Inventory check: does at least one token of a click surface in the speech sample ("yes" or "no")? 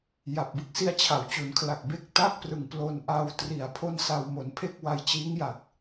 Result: no